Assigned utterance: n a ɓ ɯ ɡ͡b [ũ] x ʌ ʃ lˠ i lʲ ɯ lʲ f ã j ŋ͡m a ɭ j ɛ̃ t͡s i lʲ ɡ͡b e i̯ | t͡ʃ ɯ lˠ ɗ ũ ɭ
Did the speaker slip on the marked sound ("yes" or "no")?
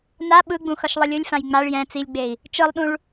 no